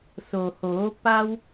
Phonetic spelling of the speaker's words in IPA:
s o˩ h oː˩˧ p a˧ w

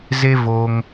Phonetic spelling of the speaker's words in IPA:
z e˦ v o˧ ŋ

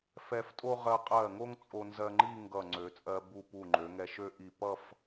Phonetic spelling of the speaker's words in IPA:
f ɛ˧ f tʼ o˥ ʁ ɜ˧ qʼ ɜ˧˩ ŋ o˥ ŋ t͡sʼ o˧ n z ɜ˧ ŋ͡ǃ i˥˧ ŋ ɡ ʌ˧˩ ŋ͡ǀ ø˩˧ t͡sʼ ɜ˧ b u˧˩ p u˧˩ ŋ͡ǃ ø˩˧ ŋ ɛ˧ ʃ ø˥ ʔ i˧˩ p ʌ˥˧ f

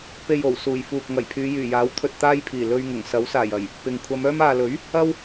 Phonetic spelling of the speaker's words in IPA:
p e˨ j o˨˩ w s uː˨˩ j f uː˨ k̚ ŋ ɐ˨˩ j pʰ yː˨˧ j yː˨˩ j aː˨˥ w t̪ʰ ɵ˨ t̚ t̪ aː˧ j pʰ iː˨˩ l ɵ˧ ɥ ŋ ʊ˨˩ ŋ s ɐ˨˥ w s aː˨˩ j ɐ˨˩ j | p ɪ˨ ŋ kʷʰ ɐ˨˧ m œː˧ m aː˨ l ɵ˨˥ ɥ | ɐ˥ w

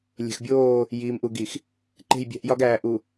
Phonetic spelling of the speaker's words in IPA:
lʲ e̤˨ x bʲ oː˦˨ | j iː˨ m ʔ u˨ ɡ i˨ x | ǃ e̤˦˨ j bʲ æ̤˦ ʔ j ɒ˦ ɡ æː˨ ʔ u˨

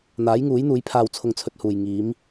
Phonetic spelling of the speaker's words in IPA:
n̪ aː˨˥ j ŋ uː˨˥ j n̪ uː˨˥ j pʰ aː˧ w t͡sʰ ʊ˧ ŋ t͡sʰ ɵ˧ t̚ h uː˨ j ŋ iː˨˧ m

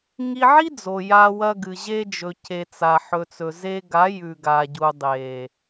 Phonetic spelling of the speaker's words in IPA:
ŋ i˧ ʕ i˦ d͡z o˨ j a˧ w ɐ˧ ɡ ɨ˨ ʑ e˧ d͡ʒ ɵ˨ c e˨ t͡s a˨ ħ ɵ˨ t͡s ɵ˨ z e˧ ɡ a˨˦ j ʉ˨ ɡ a˨ ɟ u˨ dˤ e˨

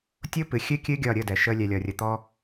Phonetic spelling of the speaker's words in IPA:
tʲ o˦ p ɨ˨ xʲ ɨ˦ kʲ ɨ˦ ɡʲ ɒ˦˨ ɾʲ ə˦˨ d ɛ˨ ʃ ə˧ lʲ ɛ˨ lʲ ɒ˨ rʲ ə˨ t̪ ɔ˧

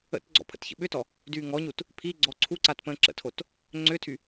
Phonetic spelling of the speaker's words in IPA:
ə̰ t ɡ͡ǀ ɔ̰ pʰ ə̰ t ç ə̰ ɓ ʏ t ɔ | d yː ŋ ɔ ɲ u t | pʰ i ɡ͡ǀ ɔ ǀʰ u ǀ a t p ə̃ː ǁ ə̰ tʰ o t | ŋ͡ǀ ʏː tʰ y

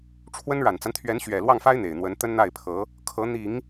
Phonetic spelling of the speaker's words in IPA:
ʈ͡ʂʰ w ə˥ n ɻ a˨˩ n t͡s a˦ n t̪ʰ ɥ ɛ˧˥ n ɕ ɥ ɛ˨˩ l w ɑ˥˩ ŋ f a˥ ɪ̯ n̪ e˨˩ ɪ̯ n̪ w ə˧˥ n t̪ ə˥ n n̪ a˥˩ ɪ̯ pʰ ɤ˧˥ | kʰ ɤ˧˥ n̪ i˨˩˦ ŋ

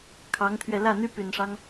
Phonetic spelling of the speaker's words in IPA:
kʰ ɑ˧˥ ŋ t̪ʰ ɥ ɛ˧ l ä˥˩ n̪ y˥ p y˨˩ n ʂ ɑ˦ ŋ

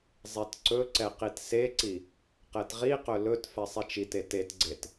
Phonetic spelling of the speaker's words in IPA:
zˤ e t ǀ ɵ ǀ ɛ q i t s e ǀ i | q ɛ t ʁ i q ɵ l ɵ t f ɛ sˤ e t͡ʃ i t e t e t ɡ͡ǀ e t

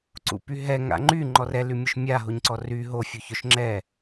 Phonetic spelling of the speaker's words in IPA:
ǀ ṵ p y ɦ ɛ ŋ a̰ ŋ͡ǃ y ŋ͡ǃ ɔ r ɛ l y mʲ ʊ ʃ mʲ a ɦ o ɲ ǀ ɔ r y ɦ o fʲ u ç œ ʃ ŋ͡ǁ ɛ

